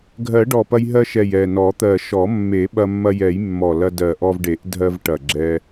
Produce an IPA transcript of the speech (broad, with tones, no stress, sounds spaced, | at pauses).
ɡʱ ɜ˨˩˦ ɖ ɔ˨˩ p ɐ˧ j ɦ ɜ˧ ʃ ɛ˨˩ j ɛ˨˩ n ɔ˨˩˦ t̪ ɜ˨˩ ʃ ɔ˨˩˦ mː e˨˩˦ ɓ ɐ˧ mː ɐ˧ j ɛ˨˩˦ j mː ɔ˨˩ l ɐ˧ d ɜ˨˩ ʔ ɔ˧ v ɖ e˨˩˦ ʔ dʱ ɜ˧ v ʈ ɐ˨˩ ɡ͡ǁ ɛ˧